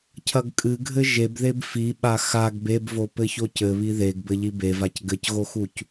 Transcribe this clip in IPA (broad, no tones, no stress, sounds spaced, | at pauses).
cʰ ɐ ɡ kʼ ɨ ɡʱ ɘ ʒ e b ð e b f i ɓ a x a ɡ b e b v o p ɘ ç o c ɘ β i ð e ɡ b ɘ ʎ i b e v a c ɡ ɘ c ɣ o x u c